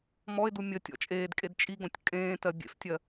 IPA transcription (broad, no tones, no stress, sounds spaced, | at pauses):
m ɔ ɪ̯ d u mʲ ə tʲ ɔ̰ t͡ʃʼ eː d kʼ e d t͡ʃʼ i ɡ õ tʲ kʼ ẽː t ɜ bʲ ḛ f tʲ ɜ